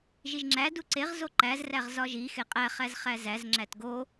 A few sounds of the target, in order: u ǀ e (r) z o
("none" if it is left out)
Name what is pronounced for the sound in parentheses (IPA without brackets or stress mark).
ʁ